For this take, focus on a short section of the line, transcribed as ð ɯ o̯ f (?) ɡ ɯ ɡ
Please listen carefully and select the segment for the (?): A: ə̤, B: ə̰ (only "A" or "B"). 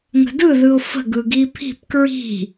A